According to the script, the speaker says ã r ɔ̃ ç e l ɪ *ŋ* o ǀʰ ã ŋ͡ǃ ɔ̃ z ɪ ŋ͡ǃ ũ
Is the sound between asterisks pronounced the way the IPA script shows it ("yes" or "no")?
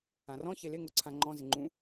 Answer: yes